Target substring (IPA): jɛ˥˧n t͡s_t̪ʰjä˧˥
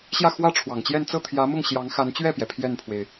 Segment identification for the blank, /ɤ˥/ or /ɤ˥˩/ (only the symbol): ɤ˥˩